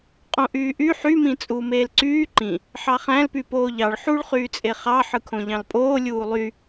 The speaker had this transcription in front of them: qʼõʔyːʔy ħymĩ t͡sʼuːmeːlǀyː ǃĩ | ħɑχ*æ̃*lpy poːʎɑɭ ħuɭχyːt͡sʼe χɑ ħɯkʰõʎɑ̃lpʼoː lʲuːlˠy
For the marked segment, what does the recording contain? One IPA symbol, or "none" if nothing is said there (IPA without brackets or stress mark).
æ̃